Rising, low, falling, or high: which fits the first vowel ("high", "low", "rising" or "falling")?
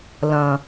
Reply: low